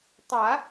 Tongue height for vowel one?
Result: low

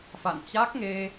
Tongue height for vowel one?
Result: low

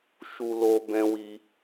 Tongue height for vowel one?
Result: high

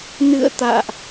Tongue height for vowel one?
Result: high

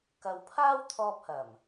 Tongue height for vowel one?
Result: low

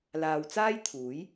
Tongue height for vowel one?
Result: low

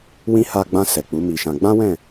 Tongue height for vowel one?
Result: high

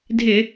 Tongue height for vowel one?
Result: high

